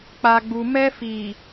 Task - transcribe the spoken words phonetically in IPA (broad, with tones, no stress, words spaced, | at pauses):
k͡pa˨ɡ͡bu˨ mɛ˧fi˨